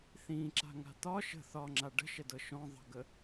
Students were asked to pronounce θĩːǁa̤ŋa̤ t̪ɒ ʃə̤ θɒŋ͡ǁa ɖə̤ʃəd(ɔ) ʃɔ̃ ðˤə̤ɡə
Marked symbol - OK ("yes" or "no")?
no